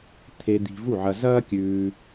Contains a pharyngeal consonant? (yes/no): yes